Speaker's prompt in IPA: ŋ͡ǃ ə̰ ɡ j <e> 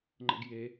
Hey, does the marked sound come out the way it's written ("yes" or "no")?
yes